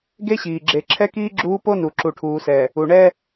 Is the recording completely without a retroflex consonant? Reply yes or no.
no